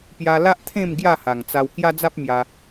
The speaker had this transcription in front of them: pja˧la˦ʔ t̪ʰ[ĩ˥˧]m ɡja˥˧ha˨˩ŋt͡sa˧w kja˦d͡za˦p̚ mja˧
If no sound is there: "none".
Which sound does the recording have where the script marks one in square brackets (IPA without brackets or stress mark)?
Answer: ẽ˥˧